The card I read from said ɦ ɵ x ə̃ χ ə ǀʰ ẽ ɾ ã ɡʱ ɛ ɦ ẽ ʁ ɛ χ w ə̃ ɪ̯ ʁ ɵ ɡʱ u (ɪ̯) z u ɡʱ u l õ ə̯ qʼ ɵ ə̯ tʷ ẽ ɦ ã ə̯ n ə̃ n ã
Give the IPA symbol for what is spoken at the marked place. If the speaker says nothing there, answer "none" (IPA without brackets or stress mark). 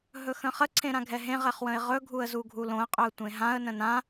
ə̯